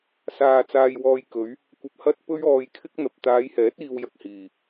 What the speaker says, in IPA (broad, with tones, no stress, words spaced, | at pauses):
saː˨ t͡saː˧jwɔː˧jkɵ˨˥ɥ | kʷɐ˧p̚hɐ˥t̚ pɵ˥ɥɔː˧jkʰɪ˥k̚n̪ɐ˨p̚ t̪aː˨˧jhɛː˨˥t̚ iː˧wjɐ˧k̚ hiː˨˩